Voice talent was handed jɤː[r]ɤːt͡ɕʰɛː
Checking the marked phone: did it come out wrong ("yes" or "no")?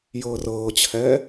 no